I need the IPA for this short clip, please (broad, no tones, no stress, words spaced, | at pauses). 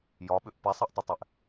jɒɓʏʔ pɛsˤɛʔtˤətˤɛʔ